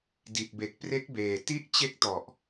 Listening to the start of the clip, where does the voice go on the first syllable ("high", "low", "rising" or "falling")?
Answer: low